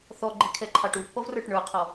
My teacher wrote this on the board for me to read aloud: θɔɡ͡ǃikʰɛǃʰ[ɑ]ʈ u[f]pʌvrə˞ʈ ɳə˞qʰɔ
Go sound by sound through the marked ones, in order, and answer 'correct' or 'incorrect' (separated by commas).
correct, incorrect